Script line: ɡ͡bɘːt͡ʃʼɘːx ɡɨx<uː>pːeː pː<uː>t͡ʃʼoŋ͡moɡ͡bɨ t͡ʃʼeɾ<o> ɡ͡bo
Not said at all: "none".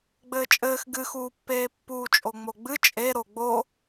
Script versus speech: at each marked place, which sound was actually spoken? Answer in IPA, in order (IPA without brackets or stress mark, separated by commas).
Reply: uː, uː, o